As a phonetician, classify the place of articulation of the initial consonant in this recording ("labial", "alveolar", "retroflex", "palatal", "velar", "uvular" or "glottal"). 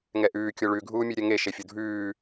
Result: velar